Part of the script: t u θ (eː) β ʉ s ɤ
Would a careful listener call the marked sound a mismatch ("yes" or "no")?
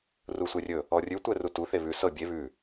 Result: yes